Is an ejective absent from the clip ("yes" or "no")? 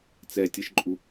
no